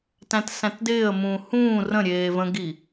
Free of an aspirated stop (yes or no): yes